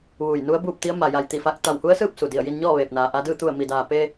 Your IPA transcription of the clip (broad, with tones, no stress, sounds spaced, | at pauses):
ʋ uː˧˩ j n u˧˥ ə̯ b uː˥˨ p̚ t̪ i˧˥ ə̯ m a˩ j a˧˩ j t̪ i˧˩ f a˧ k̚ t̪ a˧˩ w h u˧˥ ə̯ s ɯː˥˨ p̚ s u˩ d i˧˩ ə̯ j i˧ n ɲ ɔː˥˨ ʋ eː˧˩ p̚ n aː˩ ʔ a˧ d ɯː˥˨ t̪ u˧˩ ə̯ m i˩ d aː˩ p e˧